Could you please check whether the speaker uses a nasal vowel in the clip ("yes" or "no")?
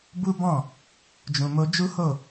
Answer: yes